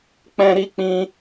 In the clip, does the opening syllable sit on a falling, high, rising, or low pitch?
high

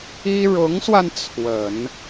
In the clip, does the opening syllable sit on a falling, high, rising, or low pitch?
high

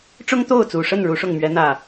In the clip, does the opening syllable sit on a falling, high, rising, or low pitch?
high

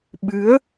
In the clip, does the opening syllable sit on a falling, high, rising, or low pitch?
rising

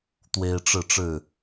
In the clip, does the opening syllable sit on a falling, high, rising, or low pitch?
high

